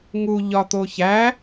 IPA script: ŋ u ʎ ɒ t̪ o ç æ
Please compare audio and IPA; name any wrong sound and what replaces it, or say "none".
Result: none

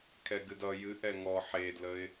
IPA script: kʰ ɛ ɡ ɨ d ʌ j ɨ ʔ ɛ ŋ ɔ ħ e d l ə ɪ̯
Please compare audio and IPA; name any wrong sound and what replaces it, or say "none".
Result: none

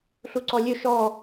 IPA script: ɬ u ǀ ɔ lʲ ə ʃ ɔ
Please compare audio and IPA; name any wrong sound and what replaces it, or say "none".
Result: ə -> ɵ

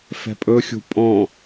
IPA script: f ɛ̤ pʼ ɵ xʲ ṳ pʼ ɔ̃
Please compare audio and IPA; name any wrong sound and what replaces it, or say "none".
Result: none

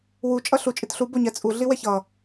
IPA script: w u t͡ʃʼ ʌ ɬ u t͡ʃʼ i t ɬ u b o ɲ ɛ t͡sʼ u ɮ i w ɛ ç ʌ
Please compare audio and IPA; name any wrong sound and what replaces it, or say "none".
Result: none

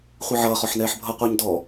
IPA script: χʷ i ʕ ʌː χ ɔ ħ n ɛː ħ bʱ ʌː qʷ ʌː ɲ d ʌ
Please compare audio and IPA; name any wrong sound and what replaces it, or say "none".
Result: ʌ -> ɔ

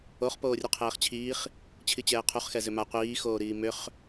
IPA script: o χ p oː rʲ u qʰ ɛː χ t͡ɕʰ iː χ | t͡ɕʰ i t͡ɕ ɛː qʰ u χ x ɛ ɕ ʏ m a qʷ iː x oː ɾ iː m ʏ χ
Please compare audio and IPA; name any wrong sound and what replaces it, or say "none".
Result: ɕ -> z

